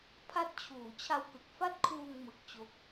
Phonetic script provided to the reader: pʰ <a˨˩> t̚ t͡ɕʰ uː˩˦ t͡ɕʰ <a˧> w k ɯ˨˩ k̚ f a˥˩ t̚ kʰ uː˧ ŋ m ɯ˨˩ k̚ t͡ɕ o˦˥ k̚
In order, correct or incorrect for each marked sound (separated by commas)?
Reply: incorrect, correct